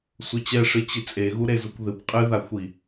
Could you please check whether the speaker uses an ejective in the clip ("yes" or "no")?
yes